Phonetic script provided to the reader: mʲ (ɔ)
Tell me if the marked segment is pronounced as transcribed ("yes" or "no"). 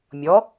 yes